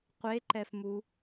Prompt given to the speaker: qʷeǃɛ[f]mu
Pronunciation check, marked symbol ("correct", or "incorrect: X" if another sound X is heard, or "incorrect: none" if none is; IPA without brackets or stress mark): correct